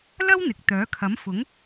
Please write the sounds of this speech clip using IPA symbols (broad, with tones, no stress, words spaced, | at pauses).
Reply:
lɐ˥wn̪ɪ˨k̚ t̪œː˨˥kʰɐ˨˥mfʊ˨˥ŋ